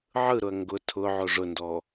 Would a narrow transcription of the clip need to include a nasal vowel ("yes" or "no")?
no